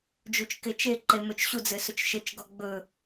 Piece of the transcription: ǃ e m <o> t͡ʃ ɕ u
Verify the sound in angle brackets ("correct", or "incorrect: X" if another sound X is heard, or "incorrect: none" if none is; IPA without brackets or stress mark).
incorrect: ɵ